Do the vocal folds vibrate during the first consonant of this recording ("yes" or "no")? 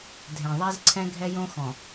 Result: yes